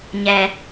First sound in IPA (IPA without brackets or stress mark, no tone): ɲ